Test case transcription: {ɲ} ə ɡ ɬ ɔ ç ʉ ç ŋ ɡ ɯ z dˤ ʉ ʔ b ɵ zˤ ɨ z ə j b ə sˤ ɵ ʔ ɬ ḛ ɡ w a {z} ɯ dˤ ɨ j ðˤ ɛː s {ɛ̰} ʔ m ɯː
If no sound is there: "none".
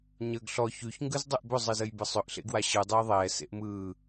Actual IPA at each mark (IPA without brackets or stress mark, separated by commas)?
ɲ, ɕ, ḛ